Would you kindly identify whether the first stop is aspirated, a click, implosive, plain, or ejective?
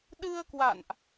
implosive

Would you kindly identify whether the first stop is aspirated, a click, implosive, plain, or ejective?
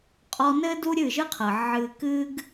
ejective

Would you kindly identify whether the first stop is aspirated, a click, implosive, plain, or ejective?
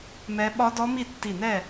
implosive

